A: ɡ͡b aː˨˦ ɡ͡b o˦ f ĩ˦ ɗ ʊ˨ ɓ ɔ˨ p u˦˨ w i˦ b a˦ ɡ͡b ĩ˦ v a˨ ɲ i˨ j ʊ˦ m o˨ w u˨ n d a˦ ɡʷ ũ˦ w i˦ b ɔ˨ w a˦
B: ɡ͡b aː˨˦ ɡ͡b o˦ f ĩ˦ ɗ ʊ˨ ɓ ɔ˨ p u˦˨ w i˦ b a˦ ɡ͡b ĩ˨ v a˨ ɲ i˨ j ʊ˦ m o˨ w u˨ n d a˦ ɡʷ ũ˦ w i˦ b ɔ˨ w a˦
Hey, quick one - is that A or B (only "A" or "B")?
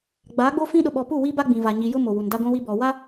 B